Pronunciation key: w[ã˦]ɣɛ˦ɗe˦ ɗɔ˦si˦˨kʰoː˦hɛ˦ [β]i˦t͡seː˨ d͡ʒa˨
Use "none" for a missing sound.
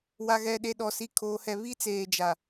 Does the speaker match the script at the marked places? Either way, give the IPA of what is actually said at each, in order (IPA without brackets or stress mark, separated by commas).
a˦, β